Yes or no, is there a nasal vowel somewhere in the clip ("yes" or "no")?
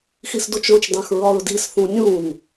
yes